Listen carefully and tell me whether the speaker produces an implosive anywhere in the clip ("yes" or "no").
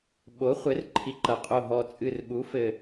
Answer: yes